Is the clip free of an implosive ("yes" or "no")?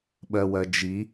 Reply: no